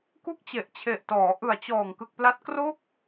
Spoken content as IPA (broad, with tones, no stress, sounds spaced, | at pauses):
k u˦˥ k̚ t͡ɕ e˨˩ ʔ t͡ɕʰ e˨˩ ʔ t ɔː˩˦ ʔ ɯ˨˩ a̯ t͡ɕ ɔː˨˩ ŋ k ɯ˨˩ k̚ p l a˦˥ t̚ k r o˥˩ k̚